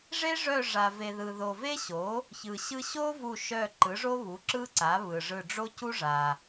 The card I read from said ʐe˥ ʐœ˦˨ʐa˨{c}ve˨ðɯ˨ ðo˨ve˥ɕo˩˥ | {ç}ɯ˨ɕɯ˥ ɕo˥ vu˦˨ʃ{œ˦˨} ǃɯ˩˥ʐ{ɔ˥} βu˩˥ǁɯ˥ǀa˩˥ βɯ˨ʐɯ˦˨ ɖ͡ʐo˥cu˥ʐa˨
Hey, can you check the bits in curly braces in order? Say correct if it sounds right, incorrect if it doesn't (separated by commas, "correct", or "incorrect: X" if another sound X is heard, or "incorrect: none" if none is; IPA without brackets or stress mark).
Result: incorrect: none, correct, correct, incorrect: o˥